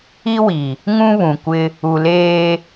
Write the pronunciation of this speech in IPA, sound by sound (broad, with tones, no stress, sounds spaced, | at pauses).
i˦ w i˨ | ŋ ũ˦ β ũ˨ kʷ ɪ˦ | u˨ l eː˦